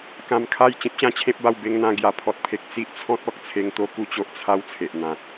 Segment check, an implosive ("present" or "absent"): absent